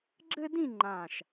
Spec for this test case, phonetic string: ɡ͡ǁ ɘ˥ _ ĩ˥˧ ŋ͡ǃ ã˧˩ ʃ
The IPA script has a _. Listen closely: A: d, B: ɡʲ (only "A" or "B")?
A